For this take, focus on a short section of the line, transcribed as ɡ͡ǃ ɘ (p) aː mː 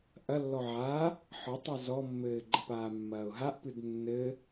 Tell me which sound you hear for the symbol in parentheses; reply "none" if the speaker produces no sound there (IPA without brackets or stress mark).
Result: p